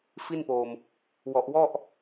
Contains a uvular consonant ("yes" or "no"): no